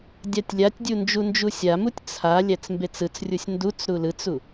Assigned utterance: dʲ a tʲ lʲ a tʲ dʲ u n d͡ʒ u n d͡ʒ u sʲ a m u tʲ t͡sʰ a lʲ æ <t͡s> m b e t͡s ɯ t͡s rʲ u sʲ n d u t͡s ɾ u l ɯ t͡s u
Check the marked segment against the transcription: correct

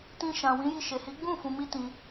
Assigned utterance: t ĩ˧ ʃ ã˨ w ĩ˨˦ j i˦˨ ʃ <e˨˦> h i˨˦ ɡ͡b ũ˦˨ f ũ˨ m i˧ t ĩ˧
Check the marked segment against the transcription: incorrect: e˨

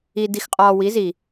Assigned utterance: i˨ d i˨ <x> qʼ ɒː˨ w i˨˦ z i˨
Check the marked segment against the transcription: correct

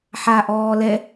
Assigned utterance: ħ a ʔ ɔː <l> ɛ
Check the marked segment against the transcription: correct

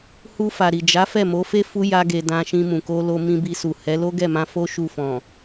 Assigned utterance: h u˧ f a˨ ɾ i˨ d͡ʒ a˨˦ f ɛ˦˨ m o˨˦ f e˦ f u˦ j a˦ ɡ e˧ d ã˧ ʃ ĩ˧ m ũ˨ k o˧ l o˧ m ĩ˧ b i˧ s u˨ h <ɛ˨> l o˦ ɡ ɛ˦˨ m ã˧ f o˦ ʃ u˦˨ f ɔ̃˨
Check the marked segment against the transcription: incorrect: ɛ˨˦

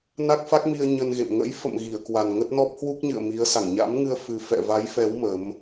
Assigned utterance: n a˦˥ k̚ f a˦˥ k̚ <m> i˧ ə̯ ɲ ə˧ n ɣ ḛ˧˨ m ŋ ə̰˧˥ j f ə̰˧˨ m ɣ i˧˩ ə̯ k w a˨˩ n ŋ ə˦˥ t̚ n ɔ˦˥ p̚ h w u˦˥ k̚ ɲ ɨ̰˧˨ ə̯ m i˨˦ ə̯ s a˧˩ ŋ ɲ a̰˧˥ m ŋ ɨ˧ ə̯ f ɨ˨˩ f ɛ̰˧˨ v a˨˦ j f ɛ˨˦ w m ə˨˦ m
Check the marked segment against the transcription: correct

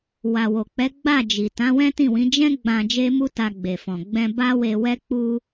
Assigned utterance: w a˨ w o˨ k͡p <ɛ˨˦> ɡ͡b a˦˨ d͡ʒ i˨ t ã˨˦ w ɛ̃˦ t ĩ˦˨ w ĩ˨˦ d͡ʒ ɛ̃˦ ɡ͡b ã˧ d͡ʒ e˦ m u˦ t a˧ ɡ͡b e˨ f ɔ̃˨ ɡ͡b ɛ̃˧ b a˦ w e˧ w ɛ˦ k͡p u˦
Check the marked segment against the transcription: correct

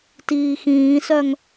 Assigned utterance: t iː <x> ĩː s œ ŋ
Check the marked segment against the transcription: correct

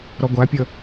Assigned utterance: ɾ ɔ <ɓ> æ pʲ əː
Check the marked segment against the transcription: incorrect: ɡʷ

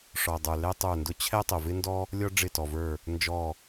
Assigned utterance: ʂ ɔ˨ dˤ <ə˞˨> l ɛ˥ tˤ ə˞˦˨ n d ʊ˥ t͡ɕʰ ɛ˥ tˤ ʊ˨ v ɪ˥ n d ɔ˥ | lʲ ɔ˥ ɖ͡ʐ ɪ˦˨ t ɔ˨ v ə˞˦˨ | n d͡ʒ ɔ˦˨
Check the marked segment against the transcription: correct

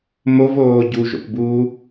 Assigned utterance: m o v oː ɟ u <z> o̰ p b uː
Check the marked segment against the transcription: incorrect: ʒ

